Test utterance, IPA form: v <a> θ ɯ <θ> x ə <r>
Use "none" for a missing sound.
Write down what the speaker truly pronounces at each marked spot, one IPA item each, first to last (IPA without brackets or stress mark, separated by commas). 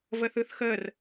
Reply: ə, θ, r